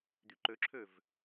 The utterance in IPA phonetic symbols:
d̪yǃøǁʰøv

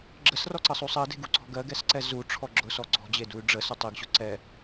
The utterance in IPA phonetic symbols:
ɡ͡ǁəsrɔǀəsˤu sˤɜde̤ɡuǀɔ̤ ɡɜɡɛsǀɛ zuʈ͡ʂʰɔ ɡ͡ǁʊsɔ ǀɔ̤d͡ʑeduy̯ ɖ͡ʐəsʊ tˤeɡɕʊ ǀɛ

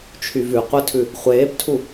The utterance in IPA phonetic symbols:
t͡ʃʰyvʉ qʷətʰʉ | χʷeːptʰu

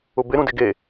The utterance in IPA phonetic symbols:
ʊbɪɾũ dɪɡe

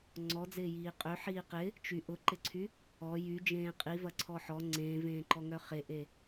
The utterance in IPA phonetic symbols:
ŋ͡ǀɔ d͡zɪːjiːqʼø ħiːqɪ | t͡ʃy ʔʊǃɪǀʰy | ɔ jy d͡ʒẽːqʼivɐǀʰɔ ħɔ ŋ͡ǀẽːvẽːǃɔ ŋœχeʔe

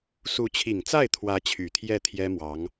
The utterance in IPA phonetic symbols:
su˧˥t͡ɕʰi˨˩ŋt͡sa˥˩ɪ̯t̪ʰwä˧˥ t͡ɕʰy˨˩t̪ʰjɛ˥˩t̪ʰjɛ˥mwɑ˧˥ŋ

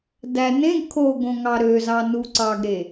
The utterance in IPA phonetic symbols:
dæ nẽɡ kʰoɡõŋɑ ɾøzɑnu ǀɑɡɾe

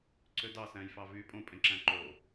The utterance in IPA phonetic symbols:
ǀødɑsæ̃j fɑvy pʼõpʼẽ ǁæ̃ǃo

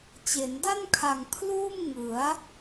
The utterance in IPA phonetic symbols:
t͡ɕe˩˦nda˥˩nkʰa˨˩ŋ pʰluː˥˩mŋɯ˩˦a̯

